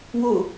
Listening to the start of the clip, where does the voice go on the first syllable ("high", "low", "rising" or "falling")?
falling